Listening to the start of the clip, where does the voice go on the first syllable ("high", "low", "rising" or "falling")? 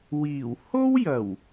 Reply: low